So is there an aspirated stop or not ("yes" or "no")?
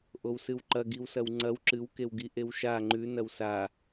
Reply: no